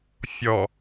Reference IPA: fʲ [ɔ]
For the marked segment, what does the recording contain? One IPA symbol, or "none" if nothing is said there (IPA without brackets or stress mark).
ɔ